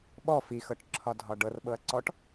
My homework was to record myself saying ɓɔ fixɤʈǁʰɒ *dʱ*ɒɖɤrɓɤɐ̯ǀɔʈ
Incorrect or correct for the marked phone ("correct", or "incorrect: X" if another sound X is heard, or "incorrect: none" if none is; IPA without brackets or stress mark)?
correct